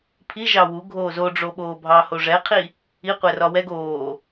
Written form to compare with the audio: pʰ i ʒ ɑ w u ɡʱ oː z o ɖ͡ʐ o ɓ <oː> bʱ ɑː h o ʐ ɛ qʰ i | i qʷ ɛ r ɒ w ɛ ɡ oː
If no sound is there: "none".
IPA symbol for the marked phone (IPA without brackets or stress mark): oː